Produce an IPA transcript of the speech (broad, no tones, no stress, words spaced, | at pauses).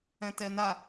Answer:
ɛ̃tɛna